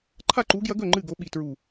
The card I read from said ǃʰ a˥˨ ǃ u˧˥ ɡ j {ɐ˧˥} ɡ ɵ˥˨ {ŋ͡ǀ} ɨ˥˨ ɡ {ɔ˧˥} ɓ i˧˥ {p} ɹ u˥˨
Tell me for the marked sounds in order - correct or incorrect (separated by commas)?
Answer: correct, incorrect, incorrect, incorrect